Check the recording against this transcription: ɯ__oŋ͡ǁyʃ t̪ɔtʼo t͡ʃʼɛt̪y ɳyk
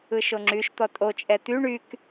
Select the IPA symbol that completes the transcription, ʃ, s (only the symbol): ʃ